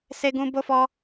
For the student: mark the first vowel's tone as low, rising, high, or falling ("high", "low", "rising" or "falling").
high